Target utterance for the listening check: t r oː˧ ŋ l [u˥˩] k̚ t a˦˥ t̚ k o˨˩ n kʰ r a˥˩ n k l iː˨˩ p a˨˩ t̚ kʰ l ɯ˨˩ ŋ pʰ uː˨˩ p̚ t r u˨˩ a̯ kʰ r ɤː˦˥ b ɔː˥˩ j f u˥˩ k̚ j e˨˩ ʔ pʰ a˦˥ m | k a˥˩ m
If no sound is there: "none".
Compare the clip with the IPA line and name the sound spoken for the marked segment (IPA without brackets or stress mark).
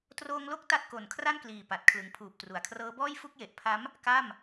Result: o˥˩